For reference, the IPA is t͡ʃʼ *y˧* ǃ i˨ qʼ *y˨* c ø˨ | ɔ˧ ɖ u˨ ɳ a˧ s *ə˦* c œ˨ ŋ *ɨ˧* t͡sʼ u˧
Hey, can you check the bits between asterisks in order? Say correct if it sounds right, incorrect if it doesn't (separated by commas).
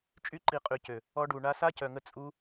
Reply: correct, correct, incorrect, incorrect